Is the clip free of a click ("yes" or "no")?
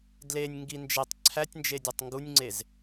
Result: no